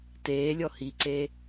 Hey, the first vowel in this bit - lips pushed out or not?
no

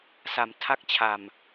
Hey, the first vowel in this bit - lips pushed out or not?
no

